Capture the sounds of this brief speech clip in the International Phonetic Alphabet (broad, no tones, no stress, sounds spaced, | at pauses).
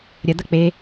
ɾʲ ɐ d̪ ɐ k͡p e